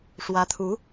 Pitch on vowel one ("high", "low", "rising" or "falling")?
rising